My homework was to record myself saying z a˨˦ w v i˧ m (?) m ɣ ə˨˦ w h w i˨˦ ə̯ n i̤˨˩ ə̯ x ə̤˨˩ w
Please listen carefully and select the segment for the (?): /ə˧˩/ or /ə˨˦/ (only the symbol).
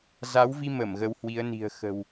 ə˧˩